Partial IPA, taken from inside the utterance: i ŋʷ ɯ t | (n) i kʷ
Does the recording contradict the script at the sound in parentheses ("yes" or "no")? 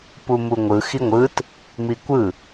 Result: yes